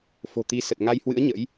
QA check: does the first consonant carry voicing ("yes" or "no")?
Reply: no